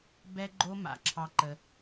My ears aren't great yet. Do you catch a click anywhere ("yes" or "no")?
yes